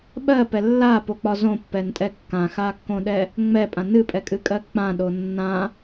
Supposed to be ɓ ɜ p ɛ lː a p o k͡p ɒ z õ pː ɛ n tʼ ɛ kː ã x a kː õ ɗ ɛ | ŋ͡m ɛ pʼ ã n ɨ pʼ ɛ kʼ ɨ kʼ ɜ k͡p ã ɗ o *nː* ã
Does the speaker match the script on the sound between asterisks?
yes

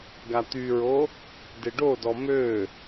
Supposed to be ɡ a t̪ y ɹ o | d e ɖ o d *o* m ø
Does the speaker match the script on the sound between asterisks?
no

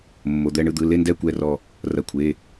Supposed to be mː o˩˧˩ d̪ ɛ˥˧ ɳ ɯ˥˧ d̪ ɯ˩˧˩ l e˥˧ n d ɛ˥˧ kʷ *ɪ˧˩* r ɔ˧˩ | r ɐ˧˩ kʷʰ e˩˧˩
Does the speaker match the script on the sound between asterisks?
no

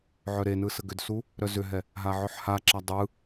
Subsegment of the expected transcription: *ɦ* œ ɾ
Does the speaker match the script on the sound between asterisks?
no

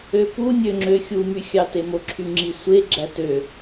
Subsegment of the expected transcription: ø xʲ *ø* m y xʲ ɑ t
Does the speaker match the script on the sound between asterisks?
no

